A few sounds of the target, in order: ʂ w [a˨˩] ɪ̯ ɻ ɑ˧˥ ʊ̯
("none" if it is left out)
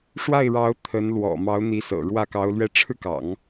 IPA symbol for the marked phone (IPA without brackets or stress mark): a˥˩